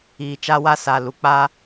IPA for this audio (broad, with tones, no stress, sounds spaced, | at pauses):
iː˨ t͡ʃ a˦ w a˦ s a˨ l u˨ k͡p a˦